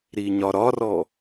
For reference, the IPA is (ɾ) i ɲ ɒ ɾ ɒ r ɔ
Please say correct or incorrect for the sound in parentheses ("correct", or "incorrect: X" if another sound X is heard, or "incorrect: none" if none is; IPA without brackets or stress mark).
correct